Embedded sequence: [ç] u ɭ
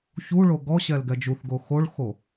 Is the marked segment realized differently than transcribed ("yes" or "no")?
no